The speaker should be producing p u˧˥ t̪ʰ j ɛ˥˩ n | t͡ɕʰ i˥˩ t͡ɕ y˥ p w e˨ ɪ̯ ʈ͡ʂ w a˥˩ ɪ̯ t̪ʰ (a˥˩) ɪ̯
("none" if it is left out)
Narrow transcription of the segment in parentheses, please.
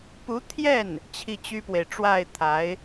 a˧˥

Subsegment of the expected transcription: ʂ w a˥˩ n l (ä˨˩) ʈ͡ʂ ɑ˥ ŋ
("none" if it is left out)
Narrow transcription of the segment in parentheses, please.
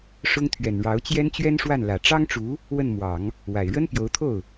ä˨˩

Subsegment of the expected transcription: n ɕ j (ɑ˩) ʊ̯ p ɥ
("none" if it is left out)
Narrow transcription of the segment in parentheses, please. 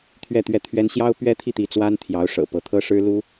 ɑ˥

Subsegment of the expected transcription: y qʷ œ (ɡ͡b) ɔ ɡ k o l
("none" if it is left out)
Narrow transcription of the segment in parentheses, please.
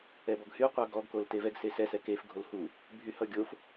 ɡ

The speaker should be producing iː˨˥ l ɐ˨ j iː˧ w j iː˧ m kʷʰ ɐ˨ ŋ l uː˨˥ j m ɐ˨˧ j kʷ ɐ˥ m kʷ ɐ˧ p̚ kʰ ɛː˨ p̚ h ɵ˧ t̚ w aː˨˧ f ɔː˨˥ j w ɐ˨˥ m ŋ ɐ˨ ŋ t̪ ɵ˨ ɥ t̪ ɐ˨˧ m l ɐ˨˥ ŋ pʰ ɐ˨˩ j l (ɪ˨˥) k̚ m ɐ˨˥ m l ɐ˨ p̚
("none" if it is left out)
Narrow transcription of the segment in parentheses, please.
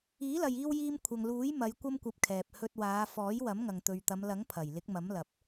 ɪ˨˥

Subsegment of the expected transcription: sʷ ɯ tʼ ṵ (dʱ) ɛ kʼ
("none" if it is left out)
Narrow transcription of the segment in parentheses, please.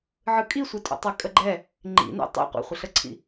tˤ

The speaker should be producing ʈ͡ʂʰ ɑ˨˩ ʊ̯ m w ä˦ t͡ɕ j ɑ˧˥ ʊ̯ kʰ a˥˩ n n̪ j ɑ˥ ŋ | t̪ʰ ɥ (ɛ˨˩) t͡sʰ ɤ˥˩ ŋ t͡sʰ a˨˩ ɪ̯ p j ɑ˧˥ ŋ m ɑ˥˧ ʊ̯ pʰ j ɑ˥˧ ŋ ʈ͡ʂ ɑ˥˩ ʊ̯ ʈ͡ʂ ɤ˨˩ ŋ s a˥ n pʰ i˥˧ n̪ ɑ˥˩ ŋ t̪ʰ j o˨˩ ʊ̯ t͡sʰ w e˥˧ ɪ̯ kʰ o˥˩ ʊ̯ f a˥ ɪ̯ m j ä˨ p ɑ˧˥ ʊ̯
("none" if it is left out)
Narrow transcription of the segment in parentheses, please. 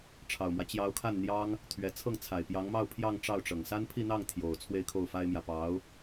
ɛ˨˩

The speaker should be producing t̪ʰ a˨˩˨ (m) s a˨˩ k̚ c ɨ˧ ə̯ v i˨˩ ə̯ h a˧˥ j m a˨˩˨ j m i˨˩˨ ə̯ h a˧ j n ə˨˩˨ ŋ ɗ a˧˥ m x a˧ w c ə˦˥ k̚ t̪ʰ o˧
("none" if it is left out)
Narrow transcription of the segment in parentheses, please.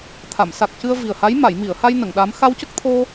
m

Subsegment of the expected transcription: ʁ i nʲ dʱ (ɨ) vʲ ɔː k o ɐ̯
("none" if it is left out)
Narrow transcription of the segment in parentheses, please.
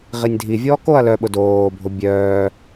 i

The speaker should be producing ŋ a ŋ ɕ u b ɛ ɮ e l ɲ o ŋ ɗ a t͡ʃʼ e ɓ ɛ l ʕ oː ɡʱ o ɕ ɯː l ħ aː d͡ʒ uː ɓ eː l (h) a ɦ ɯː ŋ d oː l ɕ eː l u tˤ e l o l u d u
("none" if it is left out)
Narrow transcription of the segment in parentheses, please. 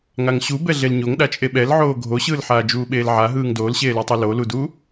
ʕ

